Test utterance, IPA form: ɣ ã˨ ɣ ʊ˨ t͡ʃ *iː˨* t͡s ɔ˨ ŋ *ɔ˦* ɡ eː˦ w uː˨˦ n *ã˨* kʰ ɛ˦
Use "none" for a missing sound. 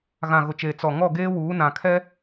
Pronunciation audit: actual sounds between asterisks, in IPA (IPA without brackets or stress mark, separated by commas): eː˨, ɔ˦˨, ã˨